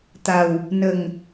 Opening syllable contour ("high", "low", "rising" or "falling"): low